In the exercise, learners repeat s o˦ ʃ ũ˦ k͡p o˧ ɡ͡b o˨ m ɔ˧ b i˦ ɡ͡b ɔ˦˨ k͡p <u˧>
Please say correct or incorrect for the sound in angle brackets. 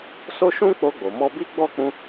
incorrect